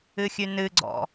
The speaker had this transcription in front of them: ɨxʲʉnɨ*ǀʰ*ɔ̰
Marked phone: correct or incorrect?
incorrect